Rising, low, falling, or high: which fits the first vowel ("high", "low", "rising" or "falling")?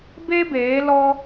high